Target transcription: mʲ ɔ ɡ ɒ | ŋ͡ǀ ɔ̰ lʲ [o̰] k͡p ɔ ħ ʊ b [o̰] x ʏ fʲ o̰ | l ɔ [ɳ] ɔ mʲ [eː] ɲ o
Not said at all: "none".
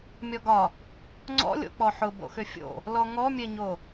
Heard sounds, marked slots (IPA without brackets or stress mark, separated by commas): o̰, o̰, ŋ, e